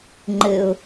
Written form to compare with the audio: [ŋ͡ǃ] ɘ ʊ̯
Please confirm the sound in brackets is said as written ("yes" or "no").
yes